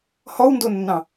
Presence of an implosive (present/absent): absent